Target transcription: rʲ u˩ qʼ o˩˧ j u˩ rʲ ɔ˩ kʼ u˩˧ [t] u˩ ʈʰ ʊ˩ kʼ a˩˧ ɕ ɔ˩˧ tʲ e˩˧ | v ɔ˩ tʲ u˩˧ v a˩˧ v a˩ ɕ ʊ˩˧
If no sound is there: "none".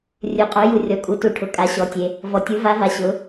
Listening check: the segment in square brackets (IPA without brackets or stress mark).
t